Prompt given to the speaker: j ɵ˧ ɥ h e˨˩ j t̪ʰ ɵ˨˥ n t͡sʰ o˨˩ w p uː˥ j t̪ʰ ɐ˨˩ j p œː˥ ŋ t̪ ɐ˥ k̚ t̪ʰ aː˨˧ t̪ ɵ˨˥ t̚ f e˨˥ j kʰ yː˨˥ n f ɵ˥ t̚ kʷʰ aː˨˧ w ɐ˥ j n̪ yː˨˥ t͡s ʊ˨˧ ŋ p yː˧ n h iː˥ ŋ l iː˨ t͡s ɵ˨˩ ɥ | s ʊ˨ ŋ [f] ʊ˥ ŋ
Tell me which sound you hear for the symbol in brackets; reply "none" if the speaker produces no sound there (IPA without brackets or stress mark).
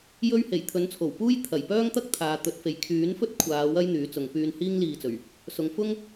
f